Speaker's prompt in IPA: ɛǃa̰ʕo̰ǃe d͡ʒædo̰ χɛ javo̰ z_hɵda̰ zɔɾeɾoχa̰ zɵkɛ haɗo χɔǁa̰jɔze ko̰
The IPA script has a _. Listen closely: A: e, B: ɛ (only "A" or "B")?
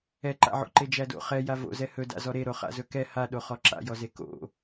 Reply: B